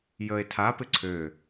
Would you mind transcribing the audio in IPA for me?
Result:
j ə e̯ tʰ a p ɪ ǀʰ ø

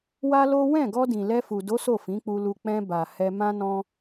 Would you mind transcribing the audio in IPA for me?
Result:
w a˦ l o˦ w ɛ̃˦˨ ɡ ɔ˧ d ĩ˨ l ɛ˧ f u˨ d o˨˦ s o˦˨ f ĩ˨˦ k͡p u˧ l u˧ k͡p ɛ̃˧ b a˨ h ɛ˧ m ã˦ n ɔ̃˦

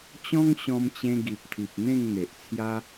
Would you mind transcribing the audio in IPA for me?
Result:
t͡ɕ ɔ̃˦ ŋ ɕ ɔ̃˧ m t͡ɕ ẽ˧ ɡ i˨ p̚ t̪ʰ i˨ p̚ n̪ ẽ˥˧ ŋ n̪ e˨ ʔ t͡sʰ j a˦

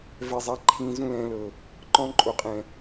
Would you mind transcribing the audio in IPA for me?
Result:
v ɛ˧ zˤ a˧ ǃʰ ĩ˧ z ũ˦ l ɛ̃˨˦ l ɤ˨ | ǃ ɔ̃˧ ǃʼ o˨ qʼ ɛ̃˨

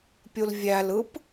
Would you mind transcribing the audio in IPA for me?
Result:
pʲ u l vʲ æ l ɯ p

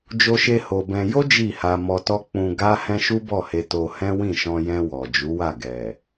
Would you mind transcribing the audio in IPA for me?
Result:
d͡ʒ o˧ ʃ e˧ h o˧ b ɛ̃˧ j o˦ d͡ʒ i˦˨ h a˧ m ɔ˧ t ɔ˦ k͡p ũ˧ ɡ a˦ h ɛ̃˦ ʃ u˦ b ɔ˦˨ h e˧ t o˧ h ɛ̃˦ w ĩ˦˨ ʃ ɔ̃˧ j ɛ̃˧ w ɔ˨ d͡ʒ u˨˦ w a˦˨ ɡ ɛ˨

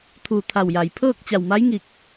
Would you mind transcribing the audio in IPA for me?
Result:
t̪ʰ uː˧˩ t̪ʰ a˧˩ w j a˩ j pʰ ɤː˥˨ k̚ t͡ɕ a˧˩ w m a˧˥ j ŋ i˧˩ k̚

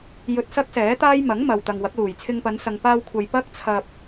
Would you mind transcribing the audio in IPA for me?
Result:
j ɵ˧ t̚ s ɐ˥ k̚ s ɛː˨˥ t̪ aː˥ j m ɐ˨˥ ŋ m ɐ˨ w t̪ ɐ˨ ŋ w ɐ˨˥ k̚ l uː˨˩ j t͡sʰ ɪ˧ ŋ p ɐ˨˧ n s ɐ˨ ŋ p aː˧ w kʷʰ ɐ˨ j p ɐ˥ k̚ t͡sʰ ɐ˧ p̚

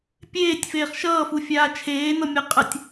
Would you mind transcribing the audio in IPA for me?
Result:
pʲ eː tʲ f eː χ ʃ ʌː f u fʲ aː t͡ʃʰ eː n ʌ mʲ a qʼ ə tʲ

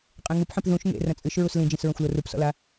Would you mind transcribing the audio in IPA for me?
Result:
qʼ ẽ ŋ u p ħ ĩ p ð ũ ʃ ŋ ḛ r ɐ̃ t͡sʼ ɨ ʃ ɹ u s l ĩ d͡ʒ ĩ s ɹ ɐ̃ xʷ l o r u p s ɔ̰ l a

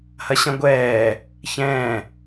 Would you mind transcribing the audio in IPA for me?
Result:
h ɐ ɕ ɐ̃ ɡʷ ɛː | ç ɛ̃ː

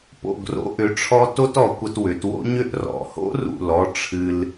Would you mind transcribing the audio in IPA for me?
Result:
p o̰˧˩ ɡ r o̰˧ ʔ ʏ˩˧ ʈ͡ʂʰ ɔ˧ t o˥ t ɔ˩˧ kʷ ə˧ t w ʏ˩˧ t w o̰˥ ɲ ʏ˥˧ ʔ r ɔ̰˩˧ h o̰˥ r ṵ˧˩ l ɔ˧ ʈ͡ʂʰ ɨ˧ l

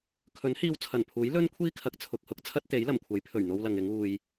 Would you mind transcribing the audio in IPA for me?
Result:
kʰ ɵ˨˥ n h iː˧ w t͡sʰ ɐ˨˩ n pʰ uː˨˥ j l ɵ˥ n kʷʰ iː˥ kʰ ɐ˨˥ k̚ t͡sʰ ʊ˨ k̚ h ʊ˨˥ k̚ t͡sʰ ɐ˥ t̚ t̪ e˨˥ j l ɐ˨˩ m kʷʰ ɐ˨˥ j pʰ ɵ˨˩ ɥ n̪ o˧ w l ɐ˨ ŋ ɪ˨˧ ŋ uː˨ j

